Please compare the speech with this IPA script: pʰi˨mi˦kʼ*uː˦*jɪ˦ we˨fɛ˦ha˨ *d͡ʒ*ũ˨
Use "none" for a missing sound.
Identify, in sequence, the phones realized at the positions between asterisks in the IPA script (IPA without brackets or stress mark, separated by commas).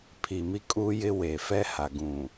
uː˦, ɡ